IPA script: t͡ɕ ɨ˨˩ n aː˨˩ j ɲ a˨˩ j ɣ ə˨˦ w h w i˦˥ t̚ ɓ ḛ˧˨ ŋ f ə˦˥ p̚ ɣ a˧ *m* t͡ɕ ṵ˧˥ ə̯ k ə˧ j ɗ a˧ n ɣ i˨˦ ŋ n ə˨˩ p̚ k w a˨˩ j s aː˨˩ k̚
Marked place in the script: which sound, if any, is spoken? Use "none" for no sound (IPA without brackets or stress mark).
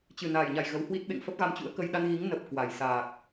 m